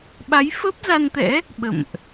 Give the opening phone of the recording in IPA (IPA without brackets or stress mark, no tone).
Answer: ɓ